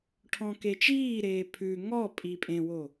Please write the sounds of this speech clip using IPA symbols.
ʈʰ ɔ̃ k e t͡ʃ iː ɾ eː pʰ ʉ ŋ ɔ pʼ i pʼ ẽ w o

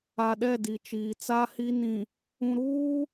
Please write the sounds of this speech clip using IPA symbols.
a˨ ɗ ɛ˦˨ d i˨ t͡ʃ iː˨ t͡s a˦ h i˦ n ĩ˨ | ũ˨ ɾ uː˦

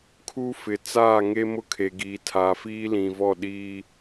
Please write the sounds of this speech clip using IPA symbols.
kʰ u˦ f ɪ˨ t͡s aː˦˨ ŋ e˦ m ʊ˦ kʰ e˨ ɡ iː˨ tʰ aː˨ f iː˦ l ĩ˨ v ɔ˦˨ ɗ iː˦

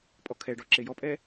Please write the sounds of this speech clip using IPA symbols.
pʼ ɔ kʰ ɛ ɖ ɔ ǁ e j ɔ pʼ ɛ

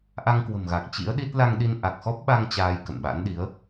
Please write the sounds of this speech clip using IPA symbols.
ʔ a˧ ŋ k w ə̤˨˩ m ɣ a˨˩ k̚ t͡ɕ ḭ˧˥ ə̯ ɗ i˦˥ t̚ l a˧ ŋ ɗ i˧ n ʔ a˨˩ k̚ x ɔ˦˥ p̚ ɓ a˧ ŋ t͡ɕ aː˧ j k ə̰˧˨ n ɓ a̰˧˥ n ɗ i˨˦ ə̯

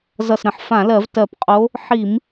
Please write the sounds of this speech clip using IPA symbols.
z ʌ˧˩ s ɾ ə̃˧˩ ħ f ã˧˩˧ l ɜ˧˩˧ v t ɜ˧˩ p qʼ o˧˥ | ħ i˧˩˧ m

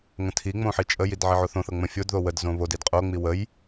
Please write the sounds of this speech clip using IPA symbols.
ŋ ə̃ tʰ i ŋ͡m õ ħ i t͡ʃʼ ə j i d ʕ i ʕ o θ õ θ ɤ ŋ͡m ə̃ fʲ o d ð o w ə d z õ β o d i d qʼ o ŋ͡m i w ə j

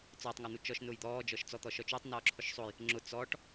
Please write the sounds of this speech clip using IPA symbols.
t͡s ɔː tˤ ŋ ɔ n̪ u t͡ʃ ɔ ʃ n ʊː j d̪ ɔː d͡ʒ ɔ ʃ t͡s ɔ t̪ ɔ ʃ ɔ t͡ʃ u tˤ n ɔː ǁʰ ʊ ʃ sˤ o j | ŋ͡ǁ ʊ t͡s ɔː ʈ

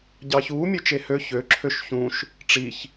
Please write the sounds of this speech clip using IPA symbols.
ɟ ɑ ç uː mʲ ø t͡ʃ e h ø ç ø ǁʰ ø ʃ ç ũ ʃ | ʈ͡ʂ i ç

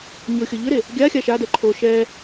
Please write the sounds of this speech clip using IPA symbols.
ɲ ʊ xʲ ɤ ʎ ʏ ɾ e | ɡʲ a xʲ a ʃ a d ɛ ǃʰ o ʃ ɛ

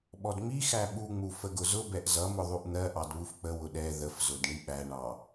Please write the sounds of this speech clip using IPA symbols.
ɓ ɔ d ŋ͡m i x æ ɓ u ŋ͡m u f ə ɡ ʊ z ʊ b ɛ ʔ z ʌ m ʊ ðˤ u ʔ n̪ ɜ ʔ ɑ d β u f k͡p ə w ʊ ɗ ɛ ð ə f z ʊ d ɳ i ɓ æ ɳ ɑ

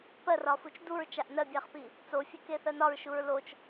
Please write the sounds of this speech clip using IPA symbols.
p ɜ r ɒ f u t͡ʃ d u ɹ t͡ʃ a ʔ n ɜ bʲ a χ p i | t͡s o fʲ ɨ k e θ ɜ n ɒ ɹ ʃ u ɹ l o t͡ʃ

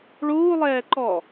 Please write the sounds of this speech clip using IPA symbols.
ɭ uː lˠ ɛː ǃ ɔ

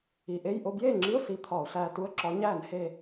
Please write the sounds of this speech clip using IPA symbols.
i˩˧˩ ʔ e˧˥˧ j ʔ o˧ b j eː˥˨ ŋ͡ǁ i˧˥˧ ʊ̯ s i˧ t̪ʰ ɒ˧˩˧ ʊ̯ ɬ æː˧ t u˧˥˧ ə̯ ǁ ɒ˧˥ ɲ æː˥˨ n h e˥˨

